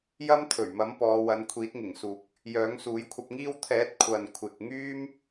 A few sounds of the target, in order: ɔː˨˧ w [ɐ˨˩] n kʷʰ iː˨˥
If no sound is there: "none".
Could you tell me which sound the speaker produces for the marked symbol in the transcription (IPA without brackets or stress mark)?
ɐ˨˧